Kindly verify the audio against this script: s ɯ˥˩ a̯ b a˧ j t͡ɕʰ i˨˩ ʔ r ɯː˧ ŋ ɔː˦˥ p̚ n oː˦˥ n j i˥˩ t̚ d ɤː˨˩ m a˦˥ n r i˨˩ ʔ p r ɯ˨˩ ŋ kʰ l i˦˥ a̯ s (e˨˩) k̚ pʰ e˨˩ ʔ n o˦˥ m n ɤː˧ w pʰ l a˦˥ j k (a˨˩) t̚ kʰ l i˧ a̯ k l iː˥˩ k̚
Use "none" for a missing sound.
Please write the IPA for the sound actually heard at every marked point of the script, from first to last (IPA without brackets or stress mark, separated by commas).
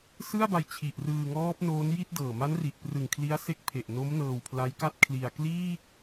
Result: e˦˥, a˥˩